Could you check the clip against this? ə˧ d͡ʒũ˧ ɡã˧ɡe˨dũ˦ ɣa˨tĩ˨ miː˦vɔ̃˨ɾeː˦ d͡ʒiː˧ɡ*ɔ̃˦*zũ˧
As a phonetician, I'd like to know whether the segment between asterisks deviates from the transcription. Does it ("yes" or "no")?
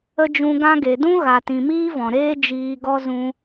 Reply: yes